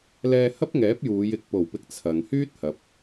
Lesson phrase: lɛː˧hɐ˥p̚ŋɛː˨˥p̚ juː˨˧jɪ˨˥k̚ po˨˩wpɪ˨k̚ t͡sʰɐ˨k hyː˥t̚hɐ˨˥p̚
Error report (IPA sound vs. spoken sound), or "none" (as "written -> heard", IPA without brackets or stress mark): k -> ŋ